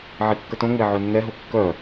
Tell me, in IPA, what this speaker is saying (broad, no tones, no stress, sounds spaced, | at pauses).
ʕ i kː ə t õ ŋ͡m e ʕ ø nː ɛ ɦ o kː œ